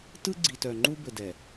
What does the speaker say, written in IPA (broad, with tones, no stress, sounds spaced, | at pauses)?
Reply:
t ɯ˦ ɡ͡ǀ i˨ t œ˨ ŋ͡ǃ u˦ b ɘ˨ d ɛ˨